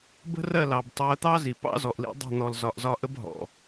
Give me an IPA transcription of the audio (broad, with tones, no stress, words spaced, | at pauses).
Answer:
bə̤˦rɜ˦˨lɑ˨b tˤɜ˦ t̪ɑ˦zi˨pɑ̰˦zɔ˨ʔ lḭ˦ dˤə̤˦˨ n̪ɔ˨lzɒ˨ʔzɒ˦˨ʔə˦b ɦɔ̰˨